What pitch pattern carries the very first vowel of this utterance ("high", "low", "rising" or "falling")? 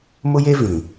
high